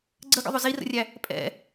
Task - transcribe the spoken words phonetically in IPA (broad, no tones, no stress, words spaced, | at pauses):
ɡ͡ǀəɡə̰ðˤʊ zirə̰rʲæ | pʼɛ̰